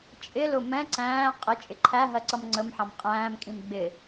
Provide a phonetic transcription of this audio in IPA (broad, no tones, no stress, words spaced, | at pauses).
t͡ʃʼɪlʊ mɛ̃ ǀæ̃ː qʼɪ t͡ʃʼɪǃʰæɦɜ ǀʌmŋ͡ǀəmħɑ̃m qʼæ̃ːmkʼĩm ɡ͡bɪ